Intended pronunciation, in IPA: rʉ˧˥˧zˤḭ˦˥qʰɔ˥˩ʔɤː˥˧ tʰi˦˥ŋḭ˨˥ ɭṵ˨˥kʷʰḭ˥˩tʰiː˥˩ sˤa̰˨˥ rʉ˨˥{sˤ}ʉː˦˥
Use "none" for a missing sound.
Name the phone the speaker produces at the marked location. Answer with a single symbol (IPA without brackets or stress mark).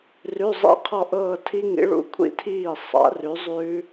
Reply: zˤ